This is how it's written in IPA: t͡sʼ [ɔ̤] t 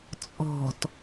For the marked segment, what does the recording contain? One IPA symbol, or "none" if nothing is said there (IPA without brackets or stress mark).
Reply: ɔ̤